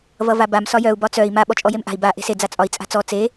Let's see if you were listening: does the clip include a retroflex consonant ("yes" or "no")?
no